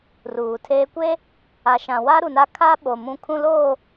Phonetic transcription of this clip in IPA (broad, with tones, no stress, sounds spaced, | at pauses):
r uː˨ tʰ eː˦ kʷ e˦ | a˨ ʃ ã˨ w a˦ ɾ u˨ n a˦ kʰ a˦ ɓ o˨ m ũ˦˨ kʰ ũ˦ l oː˦˨